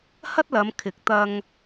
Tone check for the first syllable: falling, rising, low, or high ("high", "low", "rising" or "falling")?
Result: high